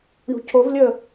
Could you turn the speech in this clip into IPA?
ɳṳcʰovlʲəː

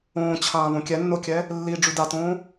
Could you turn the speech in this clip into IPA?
õːt͡ɕʰãː βõkʲɛnːokʲɛ | lːi ɖ͡ʐʉdatõː

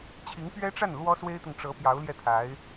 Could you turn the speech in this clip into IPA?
t͡ɕʰi˧˥ŋpɥɛ˥ʈ͡ʂa˥˩n lwɔ˥swe˥ɪ̯t̪ʊ˨ŋʈ͡ʂɤ˧˥ pjɑ˧˥ʊ̯ljɛ˥˩t̪ʰa˧˥ɪ̯

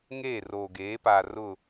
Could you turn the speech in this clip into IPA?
ŋeː˦˨roː˨ɡeː˨˦ pa˨ rʊ˦˨

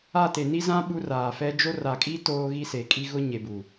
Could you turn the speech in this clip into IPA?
a˦˨ te˨ni˦zã˦ ɓu˦raː˨ fɛ˦ d͡ʒo˦ ra˨kʼi˦ toː˦ɣi˦se˨ kʼi˦ɣʊ˦ ɲe˨bu˨

